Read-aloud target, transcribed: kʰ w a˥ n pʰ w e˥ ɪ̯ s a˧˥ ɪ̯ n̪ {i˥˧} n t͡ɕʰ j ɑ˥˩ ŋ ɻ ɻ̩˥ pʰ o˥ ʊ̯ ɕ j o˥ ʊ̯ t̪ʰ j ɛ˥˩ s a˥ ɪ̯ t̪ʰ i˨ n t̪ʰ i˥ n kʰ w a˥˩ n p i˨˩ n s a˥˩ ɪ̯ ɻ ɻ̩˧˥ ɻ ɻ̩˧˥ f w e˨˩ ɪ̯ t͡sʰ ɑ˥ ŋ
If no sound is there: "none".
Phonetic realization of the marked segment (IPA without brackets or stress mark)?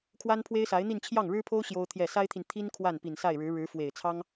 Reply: i˥˧